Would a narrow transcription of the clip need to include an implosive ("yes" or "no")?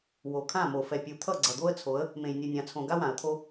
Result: no